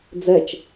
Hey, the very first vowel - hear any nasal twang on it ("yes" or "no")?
no